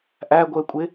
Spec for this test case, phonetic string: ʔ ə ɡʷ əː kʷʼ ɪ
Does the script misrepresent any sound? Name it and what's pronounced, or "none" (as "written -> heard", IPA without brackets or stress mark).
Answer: ə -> æ